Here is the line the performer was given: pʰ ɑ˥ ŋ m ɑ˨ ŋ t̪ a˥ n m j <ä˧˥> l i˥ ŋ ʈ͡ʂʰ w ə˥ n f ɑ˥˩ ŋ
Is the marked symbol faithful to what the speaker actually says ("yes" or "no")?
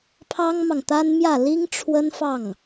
no